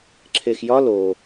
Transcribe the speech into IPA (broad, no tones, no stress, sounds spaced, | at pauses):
ǁʰ e x j ɒ l o